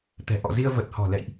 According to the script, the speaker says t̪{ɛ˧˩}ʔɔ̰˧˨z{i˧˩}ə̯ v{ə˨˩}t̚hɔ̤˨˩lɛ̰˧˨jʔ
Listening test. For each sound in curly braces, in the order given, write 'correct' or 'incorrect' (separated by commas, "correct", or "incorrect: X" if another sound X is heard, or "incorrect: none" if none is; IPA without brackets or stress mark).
incorrect: ɛ̤˨˩, incorrect: i˧, correct